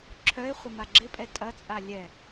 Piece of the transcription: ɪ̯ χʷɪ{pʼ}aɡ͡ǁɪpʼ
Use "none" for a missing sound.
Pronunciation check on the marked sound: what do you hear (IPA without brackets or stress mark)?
m